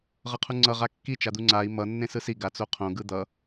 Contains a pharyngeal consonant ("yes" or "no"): no